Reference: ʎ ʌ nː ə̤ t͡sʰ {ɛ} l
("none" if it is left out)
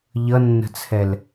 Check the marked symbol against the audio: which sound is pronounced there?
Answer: ɛ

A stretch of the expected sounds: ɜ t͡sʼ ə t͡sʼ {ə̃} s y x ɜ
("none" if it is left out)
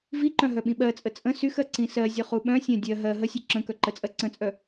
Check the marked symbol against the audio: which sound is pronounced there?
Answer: ə̃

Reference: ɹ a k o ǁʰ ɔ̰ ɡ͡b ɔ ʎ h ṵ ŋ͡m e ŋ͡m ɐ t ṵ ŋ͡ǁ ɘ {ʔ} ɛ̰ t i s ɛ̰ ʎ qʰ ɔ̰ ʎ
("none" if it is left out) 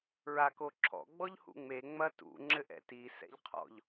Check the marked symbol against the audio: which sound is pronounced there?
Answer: ʔ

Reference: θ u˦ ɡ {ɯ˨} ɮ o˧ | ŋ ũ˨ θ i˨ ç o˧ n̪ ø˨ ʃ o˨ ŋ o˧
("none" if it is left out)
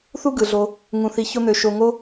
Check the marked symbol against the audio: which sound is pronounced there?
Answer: ɯ˨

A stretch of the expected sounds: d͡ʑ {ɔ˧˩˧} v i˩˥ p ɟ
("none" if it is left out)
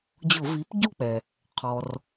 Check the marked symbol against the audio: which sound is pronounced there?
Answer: ʊ˧˩˧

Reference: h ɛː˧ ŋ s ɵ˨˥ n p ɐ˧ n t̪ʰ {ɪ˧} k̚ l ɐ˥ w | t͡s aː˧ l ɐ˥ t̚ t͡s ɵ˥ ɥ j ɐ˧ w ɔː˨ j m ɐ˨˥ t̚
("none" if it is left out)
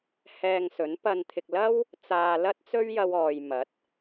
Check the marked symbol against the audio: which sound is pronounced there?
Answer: ɪ˧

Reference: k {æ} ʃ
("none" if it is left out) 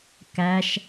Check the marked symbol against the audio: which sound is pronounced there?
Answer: æ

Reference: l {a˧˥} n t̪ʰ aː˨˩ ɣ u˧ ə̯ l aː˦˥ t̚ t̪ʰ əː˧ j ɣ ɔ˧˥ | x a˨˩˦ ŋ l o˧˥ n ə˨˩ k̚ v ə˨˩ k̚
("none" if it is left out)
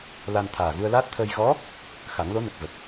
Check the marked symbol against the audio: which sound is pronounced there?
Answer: a˧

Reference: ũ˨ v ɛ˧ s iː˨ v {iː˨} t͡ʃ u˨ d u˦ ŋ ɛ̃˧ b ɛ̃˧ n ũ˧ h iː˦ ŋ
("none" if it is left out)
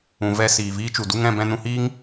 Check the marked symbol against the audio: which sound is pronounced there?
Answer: iː˦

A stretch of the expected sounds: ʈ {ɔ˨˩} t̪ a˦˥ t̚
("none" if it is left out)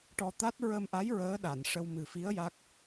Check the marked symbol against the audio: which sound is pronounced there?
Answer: ɔ˧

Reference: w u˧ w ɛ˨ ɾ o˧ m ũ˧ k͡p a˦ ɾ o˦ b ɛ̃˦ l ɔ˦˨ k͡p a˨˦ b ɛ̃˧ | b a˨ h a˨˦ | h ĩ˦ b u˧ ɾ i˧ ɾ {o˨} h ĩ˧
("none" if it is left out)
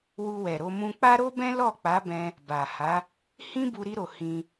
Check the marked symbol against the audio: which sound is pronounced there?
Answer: o˨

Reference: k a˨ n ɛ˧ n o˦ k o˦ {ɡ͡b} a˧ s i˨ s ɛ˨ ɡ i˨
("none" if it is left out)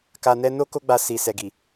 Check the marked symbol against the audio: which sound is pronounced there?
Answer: ɡ͡b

